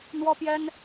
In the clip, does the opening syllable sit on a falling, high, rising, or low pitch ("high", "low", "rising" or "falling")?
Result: high